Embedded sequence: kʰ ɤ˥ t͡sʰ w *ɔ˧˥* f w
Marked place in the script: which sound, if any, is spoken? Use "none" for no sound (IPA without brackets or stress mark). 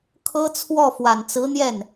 ɔ˥˩